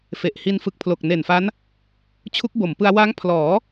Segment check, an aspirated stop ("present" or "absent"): present